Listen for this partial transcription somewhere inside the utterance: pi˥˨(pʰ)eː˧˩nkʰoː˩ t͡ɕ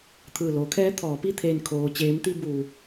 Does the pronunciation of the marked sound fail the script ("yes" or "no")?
yes